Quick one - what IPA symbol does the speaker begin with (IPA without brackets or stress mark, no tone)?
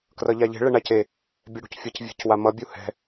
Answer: k